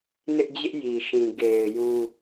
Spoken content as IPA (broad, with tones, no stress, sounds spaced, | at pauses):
n ɪ˦ ʔ d͡ʑ ɪ˦ ʔ j i˨ ʃ ĩ˨ ɡ e˨ ɪ̯ j ũ˦